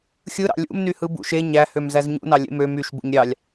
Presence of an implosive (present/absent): absent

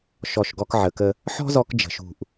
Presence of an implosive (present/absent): absent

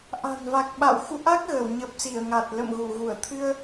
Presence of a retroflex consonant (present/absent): absent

